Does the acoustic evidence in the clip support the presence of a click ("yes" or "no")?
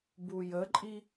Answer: yes